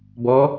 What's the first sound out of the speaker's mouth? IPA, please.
b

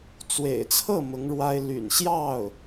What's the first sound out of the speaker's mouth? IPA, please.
t͡s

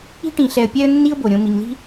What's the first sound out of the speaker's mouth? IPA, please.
i̤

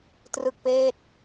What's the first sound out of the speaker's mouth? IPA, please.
t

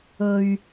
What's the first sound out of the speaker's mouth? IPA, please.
ɵ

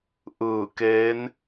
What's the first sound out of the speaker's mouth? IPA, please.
ʔ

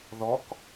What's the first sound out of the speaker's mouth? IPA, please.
ð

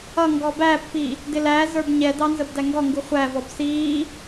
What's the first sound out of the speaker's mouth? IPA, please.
ʌ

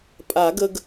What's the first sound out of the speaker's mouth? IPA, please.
pʼ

